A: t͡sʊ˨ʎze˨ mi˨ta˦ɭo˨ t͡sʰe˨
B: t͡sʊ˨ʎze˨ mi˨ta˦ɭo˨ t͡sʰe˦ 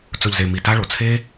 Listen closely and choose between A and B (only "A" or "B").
B